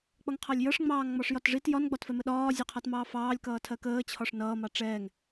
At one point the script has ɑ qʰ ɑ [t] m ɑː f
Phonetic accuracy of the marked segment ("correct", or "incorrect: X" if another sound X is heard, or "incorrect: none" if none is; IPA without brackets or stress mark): correct